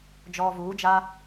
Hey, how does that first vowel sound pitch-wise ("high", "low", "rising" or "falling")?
low